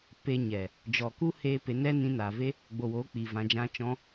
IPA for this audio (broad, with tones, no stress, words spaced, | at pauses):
pe˧ɲɛ˨ | d͡ʒɔ˨ku˦heː˧ pe˨˦nɛ˦nĩ˧naː˨ ve˦ | ɡ͡bo˧woː˨˦k͡piː˨ vã˨d͡ʒã˧ t͡ʃɔ̃˧